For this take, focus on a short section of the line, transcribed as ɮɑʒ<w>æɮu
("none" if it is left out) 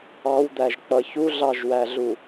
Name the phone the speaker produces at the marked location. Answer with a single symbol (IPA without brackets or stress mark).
w